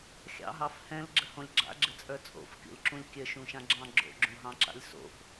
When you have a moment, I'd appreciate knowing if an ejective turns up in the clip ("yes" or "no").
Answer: yes